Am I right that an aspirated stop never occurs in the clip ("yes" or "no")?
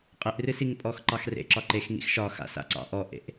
yes